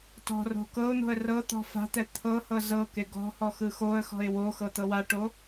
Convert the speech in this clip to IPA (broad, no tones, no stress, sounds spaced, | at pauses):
t ɔ̤ r o̤ k ɤ ʊ̯ n̪ o̤ ə̯ r ɤ t̪ ɔ̤ f a̤ t̪ ɛ t̪ʰ ɤ h ɤ z ɤ k e ɡ ɔ̤ h ɔ x ɯ x o ə̯ x ɔ̤ ɪ̯ w o x ɤ t̪ ɤ w a ʈ o